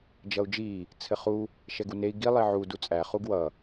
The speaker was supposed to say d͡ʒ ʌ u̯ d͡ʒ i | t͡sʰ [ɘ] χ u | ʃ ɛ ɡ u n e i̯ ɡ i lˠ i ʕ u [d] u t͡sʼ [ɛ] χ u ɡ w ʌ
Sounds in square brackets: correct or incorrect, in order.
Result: correct, correct, incorrect: æ

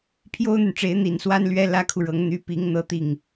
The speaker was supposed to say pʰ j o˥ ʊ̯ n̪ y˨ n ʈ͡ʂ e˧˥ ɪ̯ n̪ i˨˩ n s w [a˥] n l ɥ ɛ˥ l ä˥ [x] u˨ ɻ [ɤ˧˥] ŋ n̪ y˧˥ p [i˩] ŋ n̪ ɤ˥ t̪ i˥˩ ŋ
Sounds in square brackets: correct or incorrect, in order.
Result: correct, incorrect: kʰ, correct, incorrect: i˧˥

